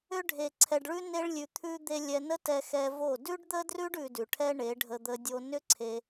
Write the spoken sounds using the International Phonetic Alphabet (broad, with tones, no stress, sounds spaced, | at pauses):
ʏ˧ ɖʱ e˨ ǀʰ ɛ˨ ɖ ɭ ʉ˧ n e˦ ɭ lʲ ʉ˧ t̪ʰ ʉ˦ d̪ e˧ lʲ ɛ˧ n ə˦ t ɛ˧ x ɛ˧ v o˦˨ d ʉ˦ ɖ d̪ ə˦ d r ʉ˦ ɖ ʉ˧ d ʉ˨ ʈʰ ɛ˦ ɳ e˨˦ ɖʱ ə˧ d̪ ə˧ dʲ o˧ n ʏ˦ ǀʰ e˧